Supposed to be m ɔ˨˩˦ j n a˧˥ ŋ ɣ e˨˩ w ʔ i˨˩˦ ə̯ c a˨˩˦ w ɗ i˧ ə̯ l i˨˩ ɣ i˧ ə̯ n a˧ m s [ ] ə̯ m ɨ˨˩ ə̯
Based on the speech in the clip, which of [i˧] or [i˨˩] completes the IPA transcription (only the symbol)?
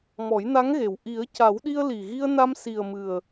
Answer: i˨˩